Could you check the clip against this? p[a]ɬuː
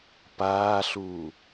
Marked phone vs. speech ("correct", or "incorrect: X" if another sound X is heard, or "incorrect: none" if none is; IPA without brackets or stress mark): incorrect: aː